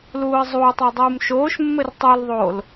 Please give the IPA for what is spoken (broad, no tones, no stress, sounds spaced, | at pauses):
l uː ə̯ zˤ uː tˤ o dˤ uː m ʃ oː ʃ mː ɘ r tˤ u l ðˤ oː l